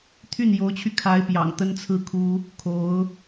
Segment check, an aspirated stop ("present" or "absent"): present